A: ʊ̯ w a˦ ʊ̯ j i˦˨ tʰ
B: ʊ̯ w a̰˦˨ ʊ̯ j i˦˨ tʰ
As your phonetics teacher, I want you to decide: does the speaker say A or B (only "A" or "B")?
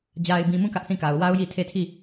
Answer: A